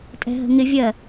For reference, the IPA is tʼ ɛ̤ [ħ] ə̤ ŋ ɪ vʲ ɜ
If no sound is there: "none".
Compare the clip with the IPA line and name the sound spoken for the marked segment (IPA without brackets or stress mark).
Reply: ɦ